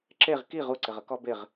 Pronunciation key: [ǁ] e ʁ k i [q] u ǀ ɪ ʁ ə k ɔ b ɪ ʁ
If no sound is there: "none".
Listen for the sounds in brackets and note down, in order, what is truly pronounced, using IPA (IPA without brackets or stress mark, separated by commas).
ǁ, ʁ